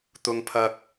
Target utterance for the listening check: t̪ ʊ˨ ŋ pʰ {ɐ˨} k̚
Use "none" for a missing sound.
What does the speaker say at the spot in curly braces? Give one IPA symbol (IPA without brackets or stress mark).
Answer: ɐ˨